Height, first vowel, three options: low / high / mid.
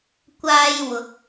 low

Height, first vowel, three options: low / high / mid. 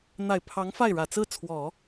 low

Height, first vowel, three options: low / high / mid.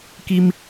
high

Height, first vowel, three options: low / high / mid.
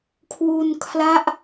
high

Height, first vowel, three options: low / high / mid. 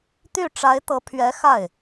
high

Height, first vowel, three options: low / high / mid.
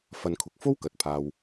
low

